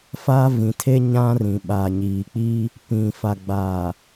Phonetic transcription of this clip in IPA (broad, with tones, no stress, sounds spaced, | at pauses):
f a˦ v ĩ˨ tʰ e˦ ɲ ã˦ r ĩ˨ ɓ a˨ ɲ iː˨ k͡p iː˦ | p ĩ˨ f a˨ ɡ͡b aː˨